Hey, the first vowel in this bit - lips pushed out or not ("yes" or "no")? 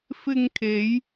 no